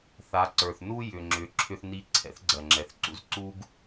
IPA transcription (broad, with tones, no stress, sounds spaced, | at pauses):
θ a˩˧ ǀ ə˞˩ θ n u˥ j ʏ˩ ŋ͡ǁ ʏ˩˧ ǁʰ ʏ˧ θ n i˧˥ ǀʰ ɛ̰˧˥ θ ɡ͡ǀ ɜ˩ ŋ͡ǁ ɛ˩ θ ǀ ṵ˥ z ǀ u˥ ɡ